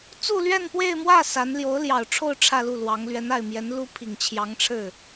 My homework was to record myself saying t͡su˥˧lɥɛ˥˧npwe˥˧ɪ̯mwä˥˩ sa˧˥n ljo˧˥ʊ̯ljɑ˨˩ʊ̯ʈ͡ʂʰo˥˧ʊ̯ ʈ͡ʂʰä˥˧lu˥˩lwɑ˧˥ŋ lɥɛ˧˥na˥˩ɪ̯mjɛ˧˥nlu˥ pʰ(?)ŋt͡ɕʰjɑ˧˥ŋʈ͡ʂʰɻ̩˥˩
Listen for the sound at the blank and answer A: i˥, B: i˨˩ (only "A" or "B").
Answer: B